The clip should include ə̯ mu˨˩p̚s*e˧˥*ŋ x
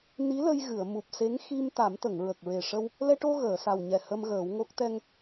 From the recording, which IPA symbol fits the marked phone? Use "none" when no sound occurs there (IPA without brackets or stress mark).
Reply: e˧˥